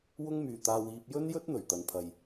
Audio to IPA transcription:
w ʊ˥ ŋ m yː˨ t̪ aː˧ w iː˧ p̚ j ɵ˥ n j ɵ˥ t̚ n̪ ɵ˨˩ ɥ t̪ ɐ˧ n pʰ ɐ˧ j

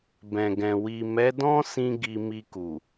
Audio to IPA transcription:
b ɛ̃˨ ɡ ɛ̃˨ w i˨ m ɛ˨˦ d ɔ̃˦ s ĩ˧ ɡ i˧ m i˧ k u˨

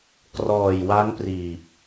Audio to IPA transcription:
k r ɔː˨˩ j w a˦˥ ŋ p r iː˨˩ p̚

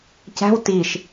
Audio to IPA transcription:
c æ̤ w t i ʃ

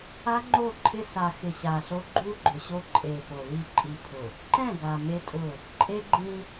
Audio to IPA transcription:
a˦ ŋ͡ǃ o˦˨ ǃʰ ɪ˦ s a˨ x ɪ˨ ɕ a˨ ɬ o˦ ɡ͡ǃ u˦ ɡ͡ǃ ʊ˨ ɕ o˦ ǃʼ e˨ p o˨ l i˦˨ ǃʼ i˨ pʰ ʊ˨ | ǃ ɛ̃˦˨ ɡ a˨ m e˦ tʼ ʊ˦˨ | ǃʼ e˦ ɡ͡ǃ ĩ˦

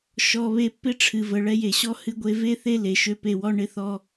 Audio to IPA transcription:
ʃ ɔ˧ β e˦ pː ɪ˦ ʈ͡ʂʰ ɨ˨ v ə˨ ɭ ɛ˧ j e˨ ɕ ɔ˦ h ɨ˦ ɡʷ e˦ v e˦ θ e˦ l e˨ ʃ ø˧ p e˧ w ɔ˦ ɳ ɪ˦ θ ɔ˦

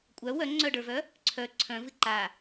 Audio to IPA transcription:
kʷʼ œ w œ ŋ͡ǀ œ ɖ ə˞ v œ | ǀʰ œ ǀʰ œ̃ v ɨ ǃ a

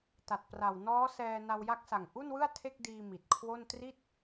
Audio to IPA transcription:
t a˨˩ t̚ p r a˨˩ w n ɔː˦˥ s ɛː˧ n a˧ w j a˦˥ k̚ s a˨˩ ŋ ʔ u˥˩ n w ɯ˥˩ a̯ tʰ e˥˩ k̚ d iː˧ m i˨˩ t̚ kʰ w o˥˩ n t r i˥˩ t̚

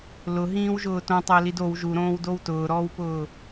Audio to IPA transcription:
l ʊ ɦ ĩː w ʒ ʊː t õ tˤ ɪː l i d o w ʒ u ɾ õː w d o w t ʊː ɾ ɔː w p ʊː

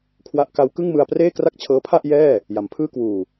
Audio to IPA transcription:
kʰ w a˦˥ ʔ k a˦˥ w k ɯ˥˩ ŋ m ɯ˧ a̯ p r eː˥˩ k r a˥˩ k̚ t͡ɕʰ ɤː˦˥ pʰ a˥˩ ʔ j ɛː˥˩ | j a˩˦ m pʰ ɯː˥˩ k w uː˨˩

